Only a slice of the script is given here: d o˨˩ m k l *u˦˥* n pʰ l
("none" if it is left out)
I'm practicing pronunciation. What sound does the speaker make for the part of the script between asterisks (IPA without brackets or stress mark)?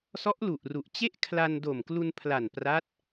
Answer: u˧